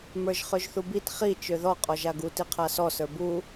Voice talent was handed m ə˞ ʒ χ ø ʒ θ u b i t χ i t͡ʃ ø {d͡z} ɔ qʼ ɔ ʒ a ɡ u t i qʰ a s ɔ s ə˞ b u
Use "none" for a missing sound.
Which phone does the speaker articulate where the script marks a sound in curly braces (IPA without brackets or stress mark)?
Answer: ð